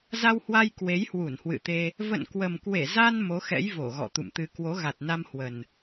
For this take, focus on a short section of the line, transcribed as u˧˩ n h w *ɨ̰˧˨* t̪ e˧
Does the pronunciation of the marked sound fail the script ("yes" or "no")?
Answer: no